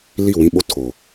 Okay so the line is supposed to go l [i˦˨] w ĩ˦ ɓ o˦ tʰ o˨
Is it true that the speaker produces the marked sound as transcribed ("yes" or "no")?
yes